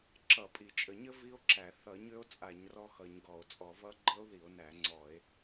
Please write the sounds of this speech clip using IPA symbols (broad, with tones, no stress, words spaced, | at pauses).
ǁʌ˧˩˧pʼi˧˩˧t͡ʃʼə˧˩˧ɲə˦˥ vi˦˥o̯ǁæ˧˩˧ θʌ˧˩˧ ɲø˦˥o̯t͡sʼa˧˩˧ɲ rɔ˦˥xʌ˧˩˧ɲɡɔ˧˩˧o̯ t͡sʼɔ˧˩˧vʌ˦˥ ɡ͡ǃə˦˥o̯ði˧˩˧o̯næ˧˩˧ ŋ͡ǀɔ˧˩˧e̯